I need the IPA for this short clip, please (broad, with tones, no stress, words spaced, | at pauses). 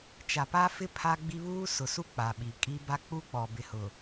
t͡ʃa˨pa˦fɪ˦ pʰa˦ɡ͡bi˦ βuː˦sʊ˨su˦ k͡pa˨ɓi˨kʼi˦ ba˦k͡pu˦k͡pɔ˨ bɪ˨hʊ˨